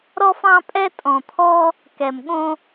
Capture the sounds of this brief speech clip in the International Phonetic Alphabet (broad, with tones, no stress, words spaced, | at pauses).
ɾɔ˥fɑ̃˥pʼɛ˥ tʼɔ̃˧t̪ʰɔ˥ | kɛ˧mɠõ˥